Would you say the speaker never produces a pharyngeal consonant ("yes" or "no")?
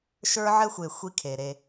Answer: no